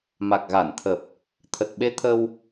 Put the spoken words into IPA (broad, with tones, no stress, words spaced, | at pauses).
ma˨˩k̚ɣa˧˩nt̪ʰə˨˩p̚ | t̪ʰə˨˩t̚ɓe˧t̪ʰə˧w